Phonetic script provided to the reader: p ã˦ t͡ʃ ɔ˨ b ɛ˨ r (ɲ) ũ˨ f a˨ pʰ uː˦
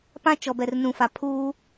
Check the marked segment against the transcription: incorrect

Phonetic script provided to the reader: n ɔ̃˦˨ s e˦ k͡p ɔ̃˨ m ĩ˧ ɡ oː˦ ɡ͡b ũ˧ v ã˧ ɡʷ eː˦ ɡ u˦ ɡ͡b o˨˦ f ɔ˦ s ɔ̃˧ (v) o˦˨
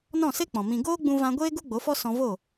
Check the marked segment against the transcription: correct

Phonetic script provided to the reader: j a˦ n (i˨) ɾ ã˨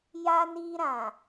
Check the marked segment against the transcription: incorrect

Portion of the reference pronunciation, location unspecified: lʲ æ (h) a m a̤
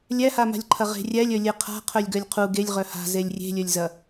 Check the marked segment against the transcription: correct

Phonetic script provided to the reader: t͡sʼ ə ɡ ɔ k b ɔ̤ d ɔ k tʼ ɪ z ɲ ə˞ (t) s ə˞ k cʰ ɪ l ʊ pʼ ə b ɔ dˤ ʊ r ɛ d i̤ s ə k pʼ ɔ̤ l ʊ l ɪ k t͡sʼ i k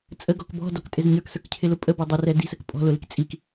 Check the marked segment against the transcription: incorrect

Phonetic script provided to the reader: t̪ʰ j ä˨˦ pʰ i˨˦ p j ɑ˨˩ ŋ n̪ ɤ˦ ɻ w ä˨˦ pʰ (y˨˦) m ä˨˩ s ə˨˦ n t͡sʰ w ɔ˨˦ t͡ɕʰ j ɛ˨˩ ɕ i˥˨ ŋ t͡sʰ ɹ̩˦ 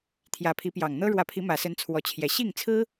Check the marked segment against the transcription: incorrect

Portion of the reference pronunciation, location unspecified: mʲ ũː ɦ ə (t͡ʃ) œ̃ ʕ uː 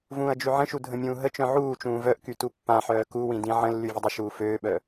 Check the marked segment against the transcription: correct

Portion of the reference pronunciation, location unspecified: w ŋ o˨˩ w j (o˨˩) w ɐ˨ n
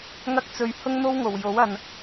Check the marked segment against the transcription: incorrect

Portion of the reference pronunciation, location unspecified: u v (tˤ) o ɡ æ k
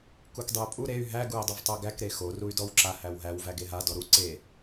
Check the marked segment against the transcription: correct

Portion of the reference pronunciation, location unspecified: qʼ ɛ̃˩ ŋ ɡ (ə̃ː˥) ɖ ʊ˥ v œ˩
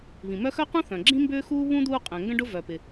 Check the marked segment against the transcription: incorrect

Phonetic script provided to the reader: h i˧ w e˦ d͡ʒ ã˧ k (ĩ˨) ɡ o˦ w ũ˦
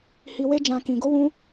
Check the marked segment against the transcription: incorrect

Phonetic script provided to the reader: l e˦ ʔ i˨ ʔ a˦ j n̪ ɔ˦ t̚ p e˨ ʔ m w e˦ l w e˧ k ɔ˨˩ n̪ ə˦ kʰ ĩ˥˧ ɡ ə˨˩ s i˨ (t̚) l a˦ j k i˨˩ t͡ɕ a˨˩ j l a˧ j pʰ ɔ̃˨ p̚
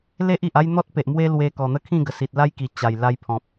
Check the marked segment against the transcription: correct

